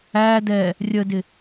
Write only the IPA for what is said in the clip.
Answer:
æ d ɛ | rʲ ə d ɪ

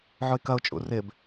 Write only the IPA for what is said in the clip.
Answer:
ʕ o ɪ̯ k ɐ ʊ̯ t͡ʃʼ ṵ r ɪ b

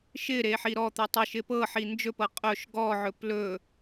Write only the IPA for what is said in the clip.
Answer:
ʃ ɪ ɾ e ħ i ɾ ɔ t̪ u tˤ ɪ ʃ ɪ p ɤ ħ i n d͡ʒ ɵ p ɤ qʼ ɵ ʃ ɡ ɔ ʕ ɵ p l ɵ

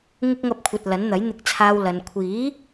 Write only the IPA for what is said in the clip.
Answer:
ŋ ɪ˧ k̚ ŋ ɐ˨˥ p̚ kʷʰ ɐ˨ t̚ l ɐ˨˥ n n̪ ɐ˨˥ j n̪ ɪ˨ k̚ t͡sʰ aː˨ w l ɐ˨ n kʷʰ iː˨˥

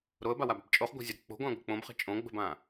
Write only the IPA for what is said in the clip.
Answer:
ɾ o ə̯ b a w a b a̤ b t͡ʃʼ o χ ɡʷ a̤ zʲ ə ɾ ə k͡p o̤ ɡʷ ã ɡʷ ə̤ k͡p õ b χ ə̤ t͡ʃʼ õ ɡ͡b ə̤ b ã

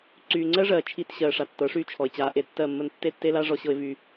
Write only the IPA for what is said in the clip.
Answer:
ǀ yː˨ ŋ͡ǀ ɜ˦ ʐ ɜː˨ t͡ʃʰ i˨ t ɕ ɜː˨ ʂ a˨ tː ɤ˨˦ ʂ yː˦ t͡ʃʰ ɔ˨ ɪ̯ t͡ɕ aː˨ ʔ e˦ tː ɜ˦˨ mː ə˦ n tː e˦ tː e˦ l a˦ ʐ ɔ˦ ɕ ɤ˦ ɪ̯ v y˦

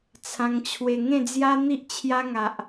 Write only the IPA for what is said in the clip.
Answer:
t͡sʰ ã˧ ŋ t͡ɕʰ w e˧ ŋ ẽ˥˧ d͡z j a˦ n̪ i˦ ʔ t͡ɕʰ j a˦ ŋ a˨ ʔ

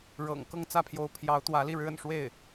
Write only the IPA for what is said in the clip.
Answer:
ɻ ɤ̰˨˩ ŋ k ɤ˥˧ ŋ t͡s ä˥˩ pʰ j o˧˥ ʊ̯ pʰ j ɑ˧˥ ʊ̯ t̪ w ä˧˥ l i˥˩ ɻ ɻ̩˥ ə̰˨˩ n ʂ w e˥˩ ɪ̯

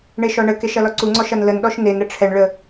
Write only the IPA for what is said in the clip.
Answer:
ɳ e ʃ ɔ ɳ ə k e ʃ ɐ l ɔ ǀ u ŋ͡ǀ ɔ ʃ ɐ n l ə n ɗ ɔ ʃ n e n ɾ ə ʈ͡ʂʰ ɛ ɳ ɭ ə

